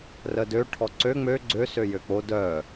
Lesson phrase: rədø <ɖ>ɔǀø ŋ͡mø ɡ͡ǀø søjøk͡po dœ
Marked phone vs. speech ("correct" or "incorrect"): incorrect